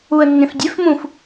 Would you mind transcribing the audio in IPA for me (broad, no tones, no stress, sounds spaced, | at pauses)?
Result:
u ə̯ nː ẽ f dʲ e f m ũ f